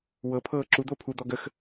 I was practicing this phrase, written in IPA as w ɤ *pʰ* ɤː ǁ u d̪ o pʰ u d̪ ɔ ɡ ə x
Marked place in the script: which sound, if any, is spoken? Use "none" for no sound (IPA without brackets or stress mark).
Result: pʰ